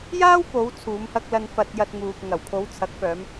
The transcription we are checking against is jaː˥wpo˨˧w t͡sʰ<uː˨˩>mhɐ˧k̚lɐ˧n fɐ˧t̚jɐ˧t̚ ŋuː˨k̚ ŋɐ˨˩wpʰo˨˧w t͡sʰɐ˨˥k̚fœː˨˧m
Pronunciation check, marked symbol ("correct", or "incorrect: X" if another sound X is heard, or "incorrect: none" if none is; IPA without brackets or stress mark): incorrect: uː˨˧